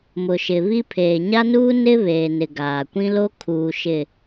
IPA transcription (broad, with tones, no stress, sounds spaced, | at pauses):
m ʊ˨ ʃ ɪ˨ β i˦ pʰ eː˨ ɲ a˦ n uː˦ n ɪ˦ β eː˨ n ɪ˨ ɡ aː˨ kʷ ĩ˦ l o˦ kʰ uː˨ ʃ ɪ˨